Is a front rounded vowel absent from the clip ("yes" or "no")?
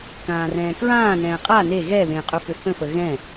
no